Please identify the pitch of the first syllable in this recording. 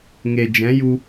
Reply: low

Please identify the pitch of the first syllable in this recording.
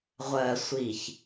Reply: low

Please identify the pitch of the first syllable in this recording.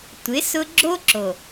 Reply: rising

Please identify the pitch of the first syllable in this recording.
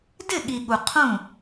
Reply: falling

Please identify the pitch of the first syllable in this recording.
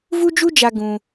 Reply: high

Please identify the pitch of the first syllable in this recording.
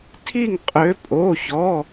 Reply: falling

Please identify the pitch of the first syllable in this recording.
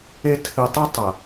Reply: high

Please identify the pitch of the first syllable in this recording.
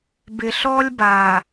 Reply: low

